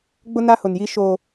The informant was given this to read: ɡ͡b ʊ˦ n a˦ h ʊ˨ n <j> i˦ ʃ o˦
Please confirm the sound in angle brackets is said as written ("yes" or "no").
yes